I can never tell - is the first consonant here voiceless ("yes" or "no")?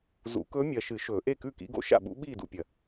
no